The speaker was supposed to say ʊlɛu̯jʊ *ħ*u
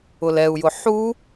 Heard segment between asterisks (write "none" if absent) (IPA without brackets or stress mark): ħ